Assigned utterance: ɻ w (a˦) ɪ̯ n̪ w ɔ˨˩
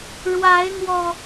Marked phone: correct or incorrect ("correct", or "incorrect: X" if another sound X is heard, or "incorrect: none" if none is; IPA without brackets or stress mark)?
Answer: incorrect: a˨˦